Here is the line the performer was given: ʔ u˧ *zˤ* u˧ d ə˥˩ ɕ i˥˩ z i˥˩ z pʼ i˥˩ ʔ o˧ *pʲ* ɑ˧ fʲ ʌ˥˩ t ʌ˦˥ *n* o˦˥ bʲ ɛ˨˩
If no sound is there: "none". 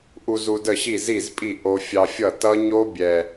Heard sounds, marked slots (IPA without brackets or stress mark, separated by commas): z, fʲ, ɲ